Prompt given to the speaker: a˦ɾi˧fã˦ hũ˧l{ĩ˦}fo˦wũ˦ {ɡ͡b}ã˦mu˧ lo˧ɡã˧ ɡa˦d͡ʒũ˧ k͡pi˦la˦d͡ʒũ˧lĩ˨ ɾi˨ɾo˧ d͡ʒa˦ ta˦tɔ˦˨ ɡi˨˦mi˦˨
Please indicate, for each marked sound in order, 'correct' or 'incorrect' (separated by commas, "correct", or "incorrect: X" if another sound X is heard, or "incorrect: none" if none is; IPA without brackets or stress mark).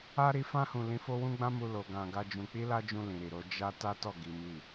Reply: incorrect: ĩ˧, correct